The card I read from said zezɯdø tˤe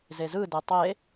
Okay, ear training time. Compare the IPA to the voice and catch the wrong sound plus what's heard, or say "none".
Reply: ø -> e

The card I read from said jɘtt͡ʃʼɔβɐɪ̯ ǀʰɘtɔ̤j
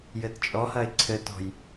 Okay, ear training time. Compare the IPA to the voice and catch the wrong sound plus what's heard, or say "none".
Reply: β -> h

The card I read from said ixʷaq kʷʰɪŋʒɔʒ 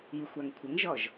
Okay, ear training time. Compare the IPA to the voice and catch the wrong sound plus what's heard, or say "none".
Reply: q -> ŋ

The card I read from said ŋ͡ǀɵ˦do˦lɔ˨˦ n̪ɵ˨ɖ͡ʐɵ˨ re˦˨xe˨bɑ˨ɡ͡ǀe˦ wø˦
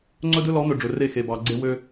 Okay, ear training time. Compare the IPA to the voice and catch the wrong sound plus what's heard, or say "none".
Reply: o˦ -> ɵ˦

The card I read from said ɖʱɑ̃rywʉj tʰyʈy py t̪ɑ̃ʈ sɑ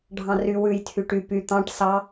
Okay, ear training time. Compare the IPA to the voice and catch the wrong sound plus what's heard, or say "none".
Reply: none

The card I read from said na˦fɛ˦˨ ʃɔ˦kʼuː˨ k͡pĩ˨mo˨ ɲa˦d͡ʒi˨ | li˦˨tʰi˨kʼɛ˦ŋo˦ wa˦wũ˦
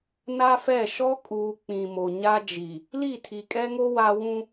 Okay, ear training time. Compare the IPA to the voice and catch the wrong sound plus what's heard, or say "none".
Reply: none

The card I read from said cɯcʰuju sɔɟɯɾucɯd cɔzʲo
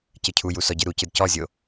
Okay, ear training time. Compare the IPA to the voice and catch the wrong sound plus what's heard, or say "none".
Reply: none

